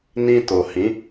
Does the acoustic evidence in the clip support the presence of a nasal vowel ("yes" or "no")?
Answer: yes